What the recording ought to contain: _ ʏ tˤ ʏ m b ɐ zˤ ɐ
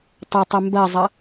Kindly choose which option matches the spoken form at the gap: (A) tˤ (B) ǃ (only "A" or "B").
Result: A